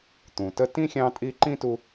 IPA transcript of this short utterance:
t̪ ũ˩ t ə˦ t ĩ˥ xʲ ɑ̃˦ tʼ i˦ ǃ ĩ˥ t u˦

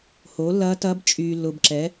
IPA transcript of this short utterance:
h oː˩˥ lː ɐː˧˥ t ɐː˧˥ b t͡ʃʼ yː˨ lː ʊ˨ b ǁ ɛ˩˥

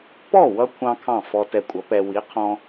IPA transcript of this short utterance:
p ɔ˥˩ w ʌ˧ kʷʰ ɑ̃˥ kʰ ɑ̃˥˩ f ɔ˧ t ɛ˧ kʷʼ ʌ˩˥ p ɛ˧ w i˩˥ qʰ ɔ̃˧

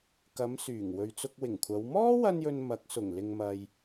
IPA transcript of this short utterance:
k ɐ˨˧ m s yː˨˩ ŋ w ɵ˨ ɥ t͡s ʊ˧ k̚ w ɪ˨˩ ŋ kʷʰ ɐ˨˧ w m ɔː˥ w ɐ˧ n j ɵ˨ n m ɐ˨˥ k̚ s ʊ˨˩ ŋ l ɪ˨ ŋ m ɐ˨ j

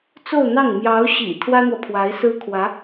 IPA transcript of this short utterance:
t͡s o˥˧ ʊ̯ n̪ ɑ˥˩ ŋ m j ɑ˧˥ ʊ̯ ɕ ḭ˨˩ t̪ʰ w ä˥ n̪ w ɔ˨ pʰ w a˧˥ ɪ̯ s ɹ̩˥ kʰ w ä˧˥

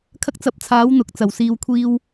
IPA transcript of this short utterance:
kʰ ɐ˥ k̚ t͡s ɐ˨˥ p̚ t͡sʰ aː˨˥ w n̪ ʊ˨ k̚ t͡s ɐ˨˩ w s iː˨ w kʷʰ iː˧ w

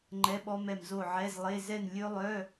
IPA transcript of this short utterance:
ŋ͡ǃ ɛ˧˥˧ ɓ ɔ˦˥ m ɛ˦˨ m z o˦˨ ʕ ɛ˧˥˧ z lˠ e˧˥˧ z ɛ˦˨ n lʲ ɵ˦˥ lˠ œ˧˥˧

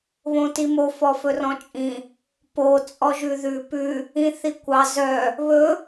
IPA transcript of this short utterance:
β õ t i m o f ɔ f ɵ r ɔ̃ t͡ʃʼ ĩ | p o t͡sʼ ɔ ʒ ʉ ð ʉ p ʉ | ĩ θ i kʷ ɑ z œ | β ɵ

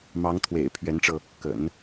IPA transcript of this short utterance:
m ɑ˧˥ ŋ t̪ʰ w ḛ˨˩ ɪ̯ pʰ ɥ ɛ˧˥ n ʈ͡ʂ ɤ˧ | k ə̰˨˩˦ n

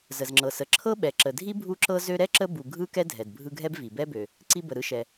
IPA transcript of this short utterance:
z ə˩ z ŋ͡ǁ ɤ˩ s ə˩ ǁʰ ɤ˥ ɓ ɛ˩ ǁ ə˩ dʱ i˥ bʱ u˥ ǁ ɤ˥ z ø˦ ɾ ɛ˥ ǁ ə˦ b u˨ ɡʱ ɯ˥ k ɛ˥ dʱ ɛ˩ d bʱ ɯ˦ ɡʱ ɛ˥ b v i˩ b ɛ˥ b ø˩ | ǀ i˦ b ə˩ ɾ ɯ˦ ʃ ɛ˩

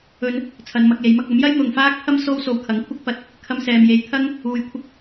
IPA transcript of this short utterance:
ɵ˧ n | t͡sʰ ɐ˨˧ n m ɐ˧ k̚ j e˨˧ j m ɐ˧ k̚ ɐ˨˥ m j ɐ˥ j n̪ ʊ˨ ŋ f aː˥ k̚ pʰ ɐ˥ m s o˥ w s o˧ w kʰ ɐ˨˥ ŋ kʷʰ ɪ˥ k̚ p ɐ˧ t̚ | kʰ ɐ˧ m s ɛː˨ m j e˨˧ j t̪ʰ ɐ˥ ŋ | uː˧ j kʷʰ ɪ˥ k̚

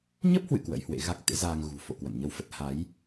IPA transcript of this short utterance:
ɲ ə˦˥ p̚ h w ɨ̰˧˨ k w ə̰˧˥ j h w ḛ˧˥ ɣ a˦˥ k̚ t̪ ḛ˧˥ z aː˧ ŋ ɣ ṳ˨˩ f o̰˧˨ k w ə̰˧˨ n ɲ ə˧ w f ə˦˥ t̚ h a˨˦ j

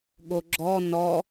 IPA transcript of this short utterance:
ɠ o ɡ͡ǁ ɔ n ɔ

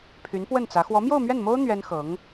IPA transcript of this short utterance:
pʰ y˧˥ n p w ə˥˩ n t͡s ä˧˥ x w ɔ˧˥ m j o˥˧ ʊ̯ m ɥ ɛ˥˩ n m o˥ ʊ̯ n̪ ɥ ɛ˥ n x ɤ˧˥ ŋ

